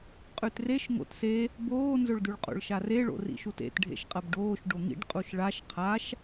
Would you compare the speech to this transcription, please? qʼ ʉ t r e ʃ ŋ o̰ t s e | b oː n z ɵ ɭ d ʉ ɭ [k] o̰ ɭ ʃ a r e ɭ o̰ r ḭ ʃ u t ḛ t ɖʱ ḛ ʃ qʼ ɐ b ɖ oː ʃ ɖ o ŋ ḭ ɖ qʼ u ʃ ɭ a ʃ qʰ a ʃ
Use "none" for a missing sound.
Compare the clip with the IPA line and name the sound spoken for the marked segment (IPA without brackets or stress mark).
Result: qʼ